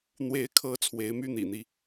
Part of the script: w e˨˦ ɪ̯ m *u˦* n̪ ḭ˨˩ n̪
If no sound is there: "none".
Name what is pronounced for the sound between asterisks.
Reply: y˦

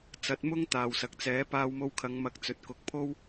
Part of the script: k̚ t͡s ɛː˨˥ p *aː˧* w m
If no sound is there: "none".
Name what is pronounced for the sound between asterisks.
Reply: aː˧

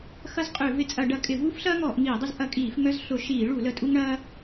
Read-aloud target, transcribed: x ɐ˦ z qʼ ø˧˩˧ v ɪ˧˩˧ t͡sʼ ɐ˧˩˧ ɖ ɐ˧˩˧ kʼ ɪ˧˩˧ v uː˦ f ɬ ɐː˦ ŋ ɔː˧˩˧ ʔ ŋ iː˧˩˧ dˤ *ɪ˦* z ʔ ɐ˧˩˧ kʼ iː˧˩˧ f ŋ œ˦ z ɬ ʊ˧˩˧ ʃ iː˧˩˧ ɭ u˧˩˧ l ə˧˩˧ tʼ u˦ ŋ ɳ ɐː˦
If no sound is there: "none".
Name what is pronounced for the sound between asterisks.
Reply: ɪ˦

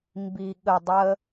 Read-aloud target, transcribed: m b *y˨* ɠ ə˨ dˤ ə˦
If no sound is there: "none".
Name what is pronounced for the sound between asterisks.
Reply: i˨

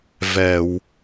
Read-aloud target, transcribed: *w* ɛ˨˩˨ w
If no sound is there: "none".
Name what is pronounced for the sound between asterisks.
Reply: v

